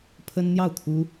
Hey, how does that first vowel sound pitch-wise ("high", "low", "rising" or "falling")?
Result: high